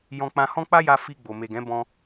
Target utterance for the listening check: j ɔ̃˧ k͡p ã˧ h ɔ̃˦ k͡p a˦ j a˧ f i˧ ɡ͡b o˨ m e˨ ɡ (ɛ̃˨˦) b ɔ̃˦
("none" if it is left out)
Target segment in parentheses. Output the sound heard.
ɛ̃˨˦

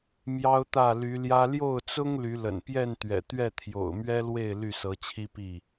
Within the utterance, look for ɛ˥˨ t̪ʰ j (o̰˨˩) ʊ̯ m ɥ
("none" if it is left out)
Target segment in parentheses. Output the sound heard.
o̰˨˩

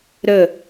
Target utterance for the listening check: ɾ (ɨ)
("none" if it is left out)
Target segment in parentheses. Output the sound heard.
ə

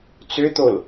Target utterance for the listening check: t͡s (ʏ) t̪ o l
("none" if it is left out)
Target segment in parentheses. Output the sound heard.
ʏ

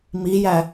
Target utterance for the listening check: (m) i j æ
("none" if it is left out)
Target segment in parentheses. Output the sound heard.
m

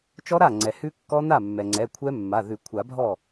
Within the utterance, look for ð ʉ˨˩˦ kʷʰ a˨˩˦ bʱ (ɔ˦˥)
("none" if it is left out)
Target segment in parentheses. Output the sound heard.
ɔ˥˩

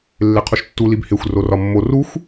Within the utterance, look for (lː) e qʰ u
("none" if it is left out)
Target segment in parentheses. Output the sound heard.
lː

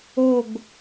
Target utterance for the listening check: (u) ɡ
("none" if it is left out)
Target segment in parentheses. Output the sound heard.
o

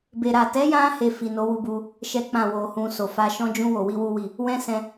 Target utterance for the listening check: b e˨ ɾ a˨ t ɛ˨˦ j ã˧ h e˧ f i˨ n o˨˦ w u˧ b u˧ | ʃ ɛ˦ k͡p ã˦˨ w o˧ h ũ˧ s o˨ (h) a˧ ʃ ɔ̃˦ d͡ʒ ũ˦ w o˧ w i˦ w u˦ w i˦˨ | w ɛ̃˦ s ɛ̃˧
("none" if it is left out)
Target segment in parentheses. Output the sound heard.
f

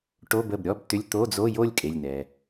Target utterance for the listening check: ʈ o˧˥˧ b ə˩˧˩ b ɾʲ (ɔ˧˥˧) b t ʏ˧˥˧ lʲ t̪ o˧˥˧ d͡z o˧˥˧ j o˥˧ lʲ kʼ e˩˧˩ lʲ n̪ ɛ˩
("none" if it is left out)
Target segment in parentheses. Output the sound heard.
ɔ˧˥˧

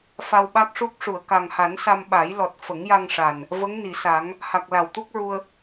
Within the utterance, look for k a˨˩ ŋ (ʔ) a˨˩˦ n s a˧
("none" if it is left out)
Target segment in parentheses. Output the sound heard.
h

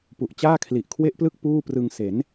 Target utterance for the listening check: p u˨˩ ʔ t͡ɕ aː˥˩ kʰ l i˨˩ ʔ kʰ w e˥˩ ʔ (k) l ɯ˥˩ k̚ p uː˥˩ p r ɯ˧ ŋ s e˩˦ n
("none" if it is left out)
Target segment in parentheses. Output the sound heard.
p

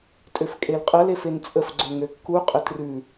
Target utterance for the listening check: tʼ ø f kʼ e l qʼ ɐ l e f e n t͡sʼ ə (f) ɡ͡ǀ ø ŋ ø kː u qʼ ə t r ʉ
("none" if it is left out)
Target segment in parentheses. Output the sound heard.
f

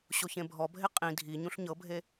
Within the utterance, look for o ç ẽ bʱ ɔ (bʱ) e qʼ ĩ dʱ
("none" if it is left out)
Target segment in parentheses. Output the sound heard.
bʱ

